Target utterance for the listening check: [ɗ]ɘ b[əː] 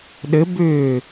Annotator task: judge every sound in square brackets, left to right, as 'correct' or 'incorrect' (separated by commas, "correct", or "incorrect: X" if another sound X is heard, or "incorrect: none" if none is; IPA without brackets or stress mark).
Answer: correct, incorrect: ʏː